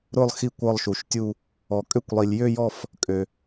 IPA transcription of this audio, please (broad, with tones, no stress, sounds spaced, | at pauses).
ɾ ʊ˦˨ lˠ x i˦˨ kʷ ɒ˦˨ lˠ ʃ u˩ ʃ tʲ u˦˨ | ɔ˩ kʼ ø˦˨ kʷ lˠ i˩ lʲ j ø˦˨ j ɔ˦˨ f | kʼ ø˩